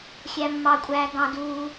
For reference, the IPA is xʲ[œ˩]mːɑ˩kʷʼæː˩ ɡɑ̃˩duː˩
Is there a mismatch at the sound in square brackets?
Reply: yes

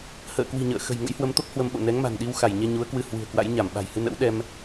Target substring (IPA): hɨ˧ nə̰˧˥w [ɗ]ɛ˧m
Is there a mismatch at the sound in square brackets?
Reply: no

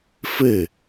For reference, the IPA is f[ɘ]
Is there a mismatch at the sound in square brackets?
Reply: no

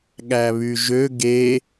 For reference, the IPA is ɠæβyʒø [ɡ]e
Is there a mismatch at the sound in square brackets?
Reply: no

